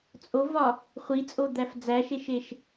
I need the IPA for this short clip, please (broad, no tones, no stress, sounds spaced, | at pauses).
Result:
t͡sʼ o v ɒ | χʷ i t͡sʼ o d̪ æ f d͡z æ ʃ e ʃ e ʃ